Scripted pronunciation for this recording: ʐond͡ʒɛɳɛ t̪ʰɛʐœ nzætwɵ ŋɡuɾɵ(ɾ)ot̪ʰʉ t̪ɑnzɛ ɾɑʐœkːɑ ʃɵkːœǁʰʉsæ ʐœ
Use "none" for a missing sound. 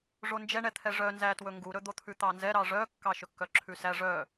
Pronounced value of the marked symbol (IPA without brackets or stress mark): d̪